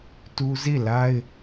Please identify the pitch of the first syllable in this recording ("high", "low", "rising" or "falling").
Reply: high